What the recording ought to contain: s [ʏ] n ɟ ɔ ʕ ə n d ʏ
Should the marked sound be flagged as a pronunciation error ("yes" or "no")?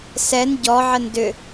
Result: yes